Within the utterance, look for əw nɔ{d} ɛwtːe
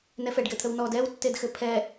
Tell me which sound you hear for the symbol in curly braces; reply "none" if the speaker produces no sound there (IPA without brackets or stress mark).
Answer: d